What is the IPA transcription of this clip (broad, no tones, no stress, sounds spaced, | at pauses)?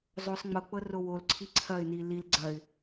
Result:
zˤ o sˤ ŋ͡m ɤ k͡p ɤ r o w o l ǀʰ i ǀʰ ɐ ɪ̯ n i l i l ɡ͡ǀ ɐ ɪ̯